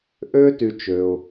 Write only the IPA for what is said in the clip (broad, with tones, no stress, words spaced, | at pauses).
ʔø˥ ty˥t͡ʃø˧ʊ̯